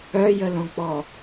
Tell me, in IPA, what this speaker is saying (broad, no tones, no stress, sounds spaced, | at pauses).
œ j ə l õ k͡p ɔ